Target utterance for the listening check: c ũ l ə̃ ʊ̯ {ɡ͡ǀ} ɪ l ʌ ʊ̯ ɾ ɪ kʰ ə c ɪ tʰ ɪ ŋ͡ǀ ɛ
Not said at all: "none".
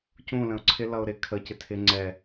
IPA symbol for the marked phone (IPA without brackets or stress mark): ǀʰ